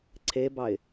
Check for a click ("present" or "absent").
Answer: present